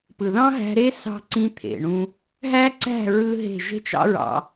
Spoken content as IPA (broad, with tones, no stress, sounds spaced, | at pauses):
p ɯ˨ ð ɑ̃˦ ɦ æ̤˧ ɾ e˦ s ɑ̤˦ ǀ ĩ˦ t̪ʰ ḛ˨ ɳ ũ˧ | ɦ æ˦ ǀ æ̤˦˨ ɹ ɯ˦ ɦ e̤˦˨ ʒ e̤˦ t͡ʃ ɑ̰˦ ɹ ɑ̰˧